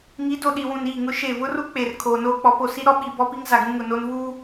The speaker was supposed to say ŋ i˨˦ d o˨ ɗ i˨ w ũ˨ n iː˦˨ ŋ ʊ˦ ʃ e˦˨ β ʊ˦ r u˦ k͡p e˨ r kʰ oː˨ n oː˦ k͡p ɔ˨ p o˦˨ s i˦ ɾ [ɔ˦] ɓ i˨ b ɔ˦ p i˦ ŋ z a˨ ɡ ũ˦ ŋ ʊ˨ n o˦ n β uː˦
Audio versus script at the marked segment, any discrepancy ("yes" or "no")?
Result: no